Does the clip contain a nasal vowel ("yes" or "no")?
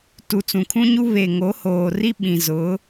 yes